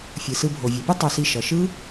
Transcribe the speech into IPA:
fʲɯ˩sɯ˧bʱo˩ vʲe˩pɯ˥ tˤo˧si˧ ʃʌ˩ʃɯ˥

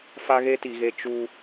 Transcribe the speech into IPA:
fa˦ɣe˦ti˨ɣe˦ t͡ʃu˦

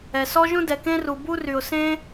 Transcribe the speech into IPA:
ɛ˩sɔ˥ʒũ˥ dɛ˩kẽ˥ru˩ bu˥ry˩ʊ̯sẽ˥

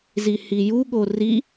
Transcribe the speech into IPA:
zihijuɠo ri

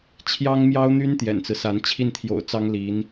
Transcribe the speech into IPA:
t͡ɕʰjɑ˥ŋmjɑ˥ʊ̯n̪y˥n t̪jɛ̰˨˩nt͡sɹ̩˦sa˧˥n t͡ɕʰi˥˩nt̪ʰjo̰˨˩ʊ̯t͡sɑ˥ŋ li˧˥n

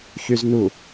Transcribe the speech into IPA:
çyznu

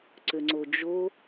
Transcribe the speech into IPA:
ǀʏŋ͡ǀod͡ʒo

